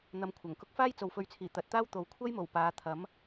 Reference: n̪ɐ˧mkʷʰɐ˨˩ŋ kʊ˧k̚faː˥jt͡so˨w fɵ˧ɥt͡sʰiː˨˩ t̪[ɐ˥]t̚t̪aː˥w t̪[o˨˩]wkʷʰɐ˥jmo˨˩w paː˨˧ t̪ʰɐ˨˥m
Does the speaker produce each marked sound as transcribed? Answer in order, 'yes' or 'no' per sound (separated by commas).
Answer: no, no